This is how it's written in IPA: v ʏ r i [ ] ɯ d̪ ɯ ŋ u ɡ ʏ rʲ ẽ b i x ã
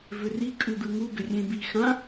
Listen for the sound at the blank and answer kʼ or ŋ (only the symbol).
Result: kʼ